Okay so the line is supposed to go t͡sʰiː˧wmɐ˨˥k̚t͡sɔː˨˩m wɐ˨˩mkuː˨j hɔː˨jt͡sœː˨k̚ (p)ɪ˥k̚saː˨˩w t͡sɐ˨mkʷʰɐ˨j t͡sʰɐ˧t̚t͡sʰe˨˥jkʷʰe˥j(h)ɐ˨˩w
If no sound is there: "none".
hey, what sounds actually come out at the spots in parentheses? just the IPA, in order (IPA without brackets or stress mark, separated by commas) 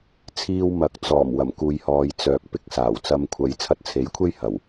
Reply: p, h